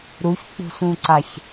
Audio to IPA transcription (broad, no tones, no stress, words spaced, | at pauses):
ɾuçk͡pṳsũǀaç